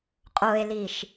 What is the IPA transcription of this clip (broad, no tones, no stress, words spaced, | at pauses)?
qʼoe̯liʃ